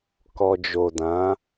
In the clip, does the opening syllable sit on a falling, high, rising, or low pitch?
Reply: low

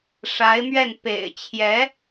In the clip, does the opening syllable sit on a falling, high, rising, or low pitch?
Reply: rising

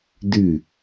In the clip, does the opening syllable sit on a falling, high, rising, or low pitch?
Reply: falling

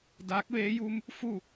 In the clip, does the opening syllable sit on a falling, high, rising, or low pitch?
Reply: rising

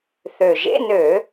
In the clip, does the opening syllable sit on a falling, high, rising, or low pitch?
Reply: low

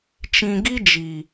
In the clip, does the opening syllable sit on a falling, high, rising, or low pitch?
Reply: low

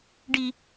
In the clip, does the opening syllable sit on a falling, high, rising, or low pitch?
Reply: high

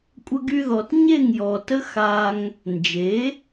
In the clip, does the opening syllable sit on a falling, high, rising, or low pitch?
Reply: high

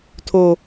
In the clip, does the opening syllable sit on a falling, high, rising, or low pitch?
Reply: low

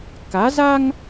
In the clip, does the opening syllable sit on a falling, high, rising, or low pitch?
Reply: rising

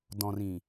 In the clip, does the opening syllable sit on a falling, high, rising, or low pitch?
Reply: low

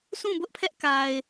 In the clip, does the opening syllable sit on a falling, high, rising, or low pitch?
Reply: falling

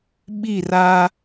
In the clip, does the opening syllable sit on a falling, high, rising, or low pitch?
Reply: falling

